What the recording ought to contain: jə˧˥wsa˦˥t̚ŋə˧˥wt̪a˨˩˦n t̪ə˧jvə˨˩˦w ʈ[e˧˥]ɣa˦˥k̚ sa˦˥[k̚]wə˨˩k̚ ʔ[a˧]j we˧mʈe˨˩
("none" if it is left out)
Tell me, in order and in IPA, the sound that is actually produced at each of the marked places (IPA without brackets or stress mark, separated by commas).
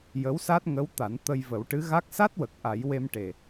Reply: ɨ˧˥, t̚, a˨˩˦